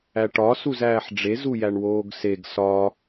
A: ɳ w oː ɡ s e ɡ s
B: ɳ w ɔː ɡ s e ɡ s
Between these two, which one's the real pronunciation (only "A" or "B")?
A